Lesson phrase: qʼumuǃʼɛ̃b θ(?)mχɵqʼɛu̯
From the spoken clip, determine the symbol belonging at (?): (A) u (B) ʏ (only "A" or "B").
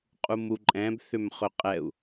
B